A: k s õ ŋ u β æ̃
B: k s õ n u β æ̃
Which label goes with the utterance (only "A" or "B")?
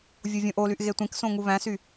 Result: A